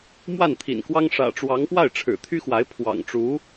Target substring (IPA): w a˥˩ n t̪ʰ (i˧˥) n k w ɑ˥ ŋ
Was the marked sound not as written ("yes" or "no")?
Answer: yes